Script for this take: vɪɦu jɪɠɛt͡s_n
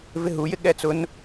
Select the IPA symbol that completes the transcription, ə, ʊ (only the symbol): ʊ